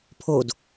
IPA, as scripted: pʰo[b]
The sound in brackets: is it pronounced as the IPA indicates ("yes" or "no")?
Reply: no